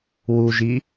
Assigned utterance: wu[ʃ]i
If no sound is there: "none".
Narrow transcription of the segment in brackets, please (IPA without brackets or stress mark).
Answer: ʒ